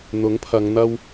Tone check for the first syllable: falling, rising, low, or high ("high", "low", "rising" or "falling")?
rising